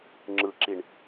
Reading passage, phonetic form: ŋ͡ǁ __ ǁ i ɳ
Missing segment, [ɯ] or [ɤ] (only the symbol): ɯ